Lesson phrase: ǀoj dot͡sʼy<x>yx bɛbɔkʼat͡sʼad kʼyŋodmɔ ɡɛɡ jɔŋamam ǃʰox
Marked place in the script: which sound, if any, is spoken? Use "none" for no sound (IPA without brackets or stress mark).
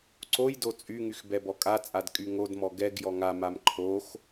ŋ